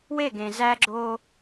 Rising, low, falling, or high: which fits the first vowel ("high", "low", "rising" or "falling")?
falling